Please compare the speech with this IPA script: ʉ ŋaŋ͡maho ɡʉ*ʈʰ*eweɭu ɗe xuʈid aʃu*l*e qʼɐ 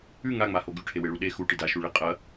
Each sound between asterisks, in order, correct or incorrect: correct, incorrect: ɭ

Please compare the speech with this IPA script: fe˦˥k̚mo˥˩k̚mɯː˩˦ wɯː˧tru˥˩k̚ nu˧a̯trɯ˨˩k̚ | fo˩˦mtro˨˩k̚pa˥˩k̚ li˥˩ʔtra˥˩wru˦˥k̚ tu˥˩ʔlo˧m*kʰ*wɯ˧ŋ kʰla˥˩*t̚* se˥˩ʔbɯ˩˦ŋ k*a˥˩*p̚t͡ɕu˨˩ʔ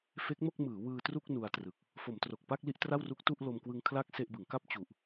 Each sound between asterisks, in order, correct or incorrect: incorrect: k, incorrect: k̚, correct

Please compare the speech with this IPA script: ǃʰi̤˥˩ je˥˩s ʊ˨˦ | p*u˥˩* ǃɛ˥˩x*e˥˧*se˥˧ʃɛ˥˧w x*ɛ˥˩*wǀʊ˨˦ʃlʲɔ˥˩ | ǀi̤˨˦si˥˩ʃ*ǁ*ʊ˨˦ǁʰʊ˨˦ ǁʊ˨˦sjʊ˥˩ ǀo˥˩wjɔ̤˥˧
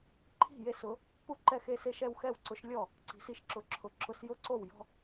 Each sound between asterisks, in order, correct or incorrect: correct, correct, correct, correct

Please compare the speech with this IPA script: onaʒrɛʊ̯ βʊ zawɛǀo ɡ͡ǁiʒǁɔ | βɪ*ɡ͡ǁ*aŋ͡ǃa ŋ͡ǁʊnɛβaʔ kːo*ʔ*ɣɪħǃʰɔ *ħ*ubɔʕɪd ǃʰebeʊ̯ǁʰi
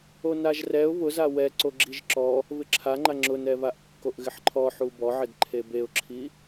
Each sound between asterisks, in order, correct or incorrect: incorrect: ǁʰ, correct, correct

